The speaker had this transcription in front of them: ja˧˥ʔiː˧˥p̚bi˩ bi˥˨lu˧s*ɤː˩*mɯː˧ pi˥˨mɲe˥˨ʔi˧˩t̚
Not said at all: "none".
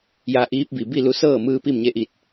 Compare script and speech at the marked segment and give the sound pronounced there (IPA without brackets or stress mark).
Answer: ɤː˥˨